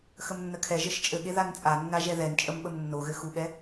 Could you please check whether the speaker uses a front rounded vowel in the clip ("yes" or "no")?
no